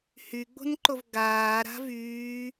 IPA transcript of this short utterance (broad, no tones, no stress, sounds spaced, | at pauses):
h y ɡ͡b o̤ n ǃ o v ɡ aː ɾ a̤ v yː